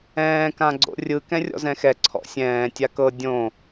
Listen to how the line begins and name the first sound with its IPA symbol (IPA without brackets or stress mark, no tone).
ɛ̃ː